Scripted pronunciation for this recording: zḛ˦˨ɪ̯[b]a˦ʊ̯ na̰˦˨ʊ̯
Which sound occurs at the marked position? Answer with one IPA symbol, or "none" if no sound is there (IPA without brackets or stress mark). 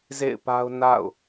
p